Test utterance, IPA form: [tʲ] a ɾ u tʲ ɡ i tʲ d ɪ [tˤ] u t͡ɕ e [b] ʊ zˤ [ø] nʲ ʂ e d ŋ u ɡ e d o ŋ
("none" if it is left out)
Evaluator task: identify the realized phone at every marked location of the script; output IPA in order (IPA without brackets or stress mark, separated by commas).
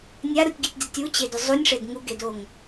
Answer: nʲ, tʲ, d, u